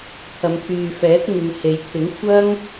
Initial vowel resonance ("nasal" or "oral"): oral